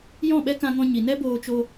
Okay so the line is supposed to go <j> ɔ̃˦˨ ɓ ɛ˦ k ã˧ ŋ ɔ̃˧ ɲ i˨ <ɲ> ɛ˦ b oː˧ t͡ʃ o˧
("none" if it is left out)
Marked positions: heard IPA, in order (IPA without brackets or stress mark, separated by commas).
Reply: j, n